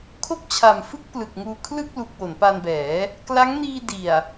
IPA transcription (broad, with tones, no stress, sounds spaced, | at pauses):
kʰ o˥˩ k̚ t͡ɕʰ a˨˩ m f ɯ˥˩ k̚ p l ɯ˨˩ k̚ ŋ uː˧ kʰ l ɯ˥˩ k̚ l u˨˩ k̚ w o˩˦ n p a˧ n b ɛː˩˦ | k l a˦˥ ŋ n iː˧ d i˨˩ a̯